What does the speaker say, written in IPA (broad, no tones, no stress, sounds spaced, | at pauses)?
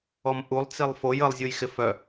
ɔ m ʔ u lˠ t͡s i lˠ f o j ə lˠ zʲ u j x ɪ f œ